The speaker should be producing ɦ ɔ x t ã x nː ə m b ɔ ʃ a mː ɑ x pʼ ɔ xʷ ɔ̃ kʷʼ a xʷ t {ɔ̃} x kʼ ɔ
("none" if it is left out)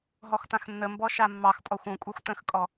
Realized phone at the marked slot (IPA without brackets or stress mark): ə̃